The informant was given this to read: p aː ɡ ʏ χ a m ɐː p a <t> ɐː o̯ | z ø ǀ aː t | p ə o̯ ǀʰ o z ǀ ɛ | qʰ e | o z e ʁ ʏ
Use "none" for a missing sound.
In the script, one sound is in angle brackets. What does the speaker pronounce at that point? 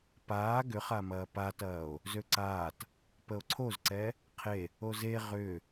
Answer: t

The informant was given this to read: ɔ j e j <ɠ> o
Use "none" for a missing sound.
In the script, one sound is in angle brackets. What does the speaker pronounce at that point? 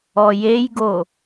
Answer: ɡ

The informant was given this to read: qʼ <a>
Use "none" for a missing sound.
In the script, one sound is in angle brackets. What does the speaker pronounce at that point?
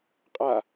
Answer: a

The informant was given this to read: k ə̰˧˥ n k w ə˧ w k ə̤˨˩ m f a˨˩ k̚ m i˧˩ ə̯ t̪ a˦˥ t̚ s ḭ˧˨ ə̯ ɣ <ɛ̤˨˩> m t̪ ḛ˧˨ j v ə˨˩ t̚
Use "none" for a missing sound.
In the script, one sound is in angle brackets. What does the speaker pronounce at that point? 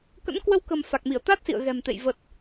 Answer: ɛ̤˨˩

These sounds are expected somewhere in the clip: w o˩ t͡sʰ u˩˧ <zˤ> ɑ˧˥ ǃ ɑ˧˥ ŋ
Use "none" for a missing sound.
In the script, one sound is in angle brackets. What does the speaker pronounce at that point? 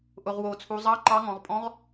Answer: zˤ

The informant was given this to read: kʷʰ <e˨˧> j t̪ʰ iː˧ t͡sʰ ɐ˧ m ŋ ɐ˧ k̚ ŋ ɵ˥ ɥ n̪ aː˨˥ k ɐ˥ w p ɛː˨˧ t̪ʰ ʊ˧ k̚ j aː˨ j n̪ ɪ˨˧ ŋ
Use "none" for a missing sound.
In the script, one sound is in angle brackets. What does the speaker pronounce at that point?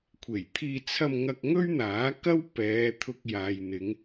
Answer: e˨˩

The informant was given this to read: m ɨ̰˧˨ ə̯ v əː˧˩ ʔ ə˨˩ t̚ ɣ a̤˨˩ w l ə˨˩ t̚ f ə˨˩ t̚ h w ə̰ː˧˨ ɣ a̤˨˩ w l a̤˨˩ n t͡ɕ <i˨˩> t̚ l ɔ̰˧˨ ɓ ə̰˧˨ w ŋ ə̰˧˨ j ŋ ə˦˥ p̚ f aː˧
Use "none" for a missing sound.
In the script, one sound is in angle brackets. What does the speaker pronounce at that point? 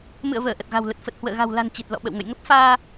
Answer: i˨˩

